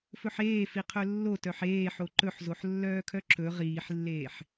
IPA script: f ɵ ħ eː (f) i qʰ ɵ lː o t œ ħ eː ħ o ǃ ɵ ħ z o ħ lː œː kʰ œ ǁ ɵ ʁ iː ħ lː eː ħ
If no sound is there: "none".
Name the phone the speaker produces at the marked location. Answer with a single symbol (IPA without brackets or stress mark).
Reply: f